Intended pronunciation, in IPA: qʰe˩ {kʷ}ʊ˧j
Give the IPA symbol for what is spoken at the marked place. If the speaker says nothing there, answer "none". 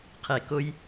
k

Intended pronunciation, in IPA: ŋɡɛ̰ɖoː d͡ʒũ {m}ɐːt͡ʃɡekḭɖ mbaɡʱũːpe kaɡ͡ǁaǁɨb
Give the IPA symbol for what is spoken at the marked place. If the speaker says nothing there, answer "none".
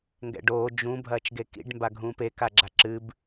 bʱ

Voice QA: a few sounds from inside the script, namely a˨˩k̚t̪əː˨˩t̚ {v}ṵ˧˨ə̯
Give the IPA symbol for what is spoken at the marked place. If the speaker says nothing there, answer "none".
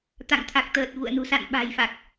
v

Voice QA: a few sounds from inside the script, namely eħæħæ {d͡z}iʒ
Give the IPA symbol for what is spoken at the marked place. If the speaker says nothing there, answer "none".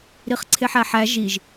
ʒ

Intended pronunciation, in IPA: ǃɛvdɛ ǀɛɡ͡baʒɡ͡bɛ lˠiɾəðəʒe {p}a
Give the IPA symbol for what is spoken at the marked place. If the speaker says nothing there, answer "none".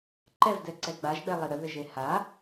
h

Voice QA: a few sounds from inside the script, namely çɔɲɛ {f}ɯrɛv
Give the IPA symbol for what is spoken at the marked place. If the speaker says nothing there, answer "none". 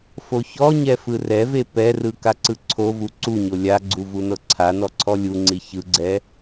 f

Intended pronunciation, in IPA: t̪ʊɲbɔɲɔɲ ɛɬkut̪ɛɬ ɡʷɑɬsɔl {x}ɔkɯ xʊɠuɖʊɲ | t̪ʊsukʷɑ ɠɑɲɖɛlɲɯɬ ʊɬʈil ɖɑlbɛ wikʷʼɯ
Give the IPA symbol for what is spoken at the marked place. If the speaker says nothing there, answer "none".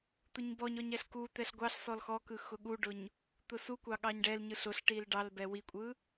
x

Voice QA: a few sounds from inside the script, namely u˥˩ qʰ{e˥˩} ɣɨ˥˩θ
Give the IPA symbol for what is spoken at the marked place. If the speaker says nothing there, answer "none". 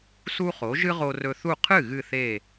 ɨ˥˩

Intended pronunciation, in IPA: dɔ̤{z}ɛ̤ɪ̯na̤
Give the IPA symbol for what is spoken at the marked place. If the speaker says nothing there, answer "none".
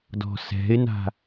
s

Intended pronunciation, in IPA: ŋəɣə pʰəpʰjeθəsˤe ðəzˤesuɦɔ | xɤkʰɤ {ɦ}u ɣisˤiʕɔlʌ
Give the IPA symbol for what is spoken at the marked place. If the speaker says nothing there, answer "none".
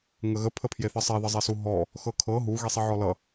ɦ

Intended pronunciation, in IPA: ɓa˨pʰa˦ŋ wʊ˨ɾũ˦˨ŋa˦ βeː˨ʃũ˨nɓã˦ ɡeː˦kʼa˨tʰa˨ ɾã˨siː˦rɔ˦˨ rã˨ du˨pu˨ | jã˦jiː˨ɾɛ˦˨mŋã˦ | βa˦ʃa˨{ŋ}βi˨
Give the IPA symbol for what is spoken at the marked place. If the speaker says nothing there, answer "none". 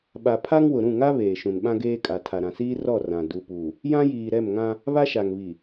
ŋ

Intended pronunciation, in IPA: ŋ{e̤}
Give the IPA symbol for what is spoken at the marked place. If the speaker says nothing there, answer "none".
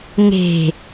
e̤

